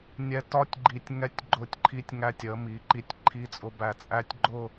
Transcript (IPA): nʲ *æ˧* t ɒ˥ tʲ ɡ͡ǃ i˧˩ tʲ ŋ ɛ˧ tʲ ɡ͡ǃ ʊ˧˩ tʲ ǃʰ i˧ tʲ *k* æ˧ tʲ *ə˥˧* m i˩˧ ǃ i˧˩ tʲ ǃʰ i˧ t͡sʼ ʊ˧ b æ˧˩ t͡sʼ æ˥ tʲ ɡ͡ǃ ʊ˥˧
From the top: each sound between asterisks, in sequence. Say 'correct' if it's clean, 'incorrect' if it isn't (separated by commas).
incorrect, incorrect, incorrect